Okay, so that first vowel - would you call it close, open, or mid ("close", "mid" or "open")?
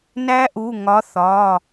open